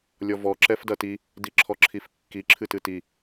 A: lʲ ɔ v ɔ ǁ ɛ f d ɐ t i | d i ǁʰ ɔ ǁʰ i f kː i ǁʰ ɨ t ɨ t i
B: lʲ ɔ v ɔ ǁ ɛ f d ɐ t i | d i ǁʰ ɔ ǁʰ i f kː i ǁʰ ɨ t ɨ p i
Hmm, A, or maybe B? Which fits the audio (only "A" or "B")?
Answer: A